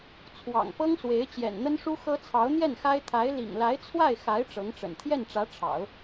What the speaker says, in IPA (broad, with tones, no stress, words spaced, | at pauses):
t͡sʰwɑ̰˨˩ŋpɤ˥ŋswe˧˥ɪ̯ t͡ɕjɛ̰˨˩nn̪ə˥nʂu˥xɤ˥ t͡sʰɑ˧˥ʊ̯n̪jɛ˥˩nxa˥ɪ̯t̪ʰa˧˥ɪ̯ lḭ˨˩ŋla˧˥ɪ̯t͡sʰwa˥˩ɪ̯ xa˧˥ɪ̯ ʈ͡ʂɤ˧˥ŋʈ͡ʂə̰˨˩n t̪ʰjɛ˥˩nʈ͡ʂä˧˥ʈ͡ʂʰɑ̰˨˩˦ʊ̯